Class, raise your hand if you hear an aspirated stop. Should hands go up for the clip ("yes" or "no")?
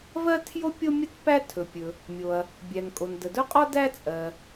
yes